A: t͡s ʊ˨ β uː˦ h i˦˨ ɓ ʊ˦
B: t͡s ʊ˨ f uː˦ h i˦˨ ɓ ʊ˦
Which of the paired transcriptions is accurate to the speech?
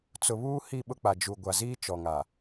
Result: A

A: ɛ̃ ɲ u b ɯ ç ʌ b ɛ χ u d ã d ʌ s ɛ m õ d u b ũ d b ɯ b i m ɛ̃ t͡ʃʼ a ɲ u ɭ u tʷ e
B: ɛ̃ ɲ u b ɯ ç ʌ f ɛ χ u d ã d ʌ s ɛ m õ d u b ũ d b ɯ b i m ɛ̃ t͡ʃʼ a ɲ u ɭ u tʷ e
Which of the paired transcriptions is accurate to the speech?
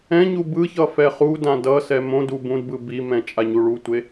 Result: B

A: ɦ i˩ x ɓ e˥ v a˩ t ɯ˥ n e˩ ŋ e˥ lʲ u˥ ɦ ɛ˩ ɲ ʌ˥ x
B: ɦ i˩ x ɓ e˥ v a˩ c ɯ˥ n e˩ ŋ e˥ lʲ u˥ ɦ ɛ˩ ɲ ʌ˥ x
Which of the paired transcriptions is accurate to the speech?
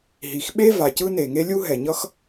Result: B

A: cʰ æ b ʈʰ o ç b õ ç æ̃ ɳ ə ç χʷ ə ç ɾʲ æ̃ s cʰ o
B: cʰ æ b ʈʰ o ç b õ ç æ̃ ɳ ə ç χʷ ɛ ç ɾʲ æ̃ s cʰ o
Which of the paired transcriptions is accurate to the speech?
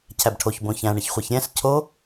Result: B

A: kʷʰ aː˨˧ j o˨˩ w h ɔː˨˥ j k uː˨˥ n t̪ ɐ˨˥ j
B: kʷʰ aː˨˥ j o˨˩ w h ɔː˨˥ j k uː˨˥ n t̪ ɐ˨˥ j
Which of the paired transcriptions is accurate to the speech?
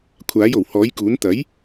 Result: B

